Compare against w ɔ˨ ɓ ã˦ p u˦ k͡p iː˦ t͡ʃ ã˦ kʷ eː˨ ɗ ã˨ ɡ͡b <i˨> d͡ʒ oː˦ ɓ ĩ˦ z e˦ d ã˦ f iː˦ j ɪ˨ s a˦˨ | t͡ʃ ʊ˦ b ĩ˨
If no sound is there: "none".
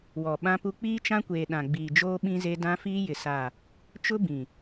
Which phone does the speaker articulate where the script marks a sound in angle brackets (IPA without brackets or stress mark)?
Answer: iː˨